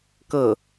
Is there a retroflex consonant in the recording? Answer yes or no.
no